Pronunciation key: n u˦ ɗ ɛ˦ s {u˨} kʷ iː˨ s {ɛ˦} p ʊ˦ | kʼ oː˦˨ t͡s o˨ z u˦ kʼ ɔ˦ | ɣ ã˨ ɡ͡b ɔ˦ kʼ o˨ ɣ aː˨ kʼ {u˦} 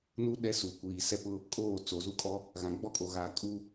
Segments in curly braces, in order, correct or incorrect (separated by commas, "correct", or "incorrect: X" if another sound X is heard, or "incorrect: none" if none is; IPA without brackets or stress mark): correct, correct, correct